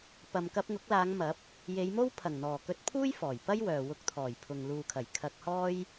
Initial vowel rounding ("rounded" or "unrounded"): unrounded